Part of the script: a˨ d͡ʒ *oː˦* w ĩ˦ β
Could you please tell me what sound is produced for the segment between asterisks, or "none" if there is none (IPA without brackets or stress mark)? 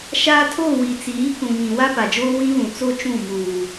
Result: oː˦